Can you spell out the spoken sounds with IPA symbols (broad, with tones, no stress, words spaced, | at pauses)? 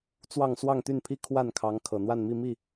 t͡swɑ˥˧ŋ swɑ˥˧ŋt̪y˥˩npʰi˥ kʰwa˥˩nkʰɑ˧˥ŋ kʰɤ˨˩n̪wa˥˧nmi˥˧ mi˥˩